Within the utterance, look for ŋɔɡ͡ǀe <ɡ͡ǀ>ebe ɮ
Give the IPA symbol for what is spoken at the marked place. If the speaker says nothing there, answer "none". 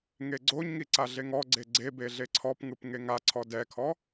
ɡ͡ǀ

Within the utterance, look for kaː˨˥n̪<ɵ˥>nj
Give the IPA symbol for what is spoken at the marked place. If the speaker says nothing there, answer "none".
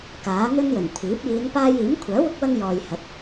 ɵ˥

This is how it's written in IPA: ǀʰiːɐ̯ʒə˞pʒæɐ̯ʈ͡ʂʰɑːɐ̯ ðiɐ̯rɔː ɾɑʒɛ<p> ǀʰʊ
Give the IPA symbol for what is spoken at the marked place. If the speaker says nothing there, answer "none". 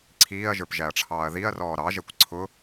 kʷ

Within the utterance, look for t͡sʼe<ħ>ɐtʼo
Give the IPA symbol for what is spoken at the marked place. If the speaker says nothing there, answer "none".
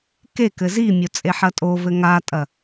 ħ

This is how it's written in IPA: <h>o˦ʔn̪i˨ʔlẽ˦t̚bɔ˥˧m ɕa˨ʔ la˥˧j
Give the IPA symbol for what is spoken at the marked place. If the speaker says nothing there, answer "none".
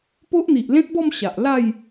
p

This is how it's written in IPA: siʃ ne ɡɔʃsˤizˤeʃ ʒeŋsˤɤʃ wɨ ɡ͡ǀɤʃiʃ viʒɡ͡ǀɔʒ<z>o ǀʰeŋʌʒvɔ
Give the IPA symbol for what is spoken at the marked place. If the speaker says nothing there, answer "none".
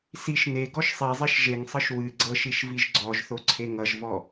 θ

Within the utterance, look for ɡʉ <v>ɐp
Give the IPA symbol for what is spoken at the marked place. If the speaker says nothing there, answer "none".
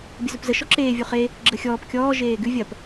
vʲ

